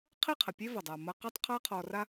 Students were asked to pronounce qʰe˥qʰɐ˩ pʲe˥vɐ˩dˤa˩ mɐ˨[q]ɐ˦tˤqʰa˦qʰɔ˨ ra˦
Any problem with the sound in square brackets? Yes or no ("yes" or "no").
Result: no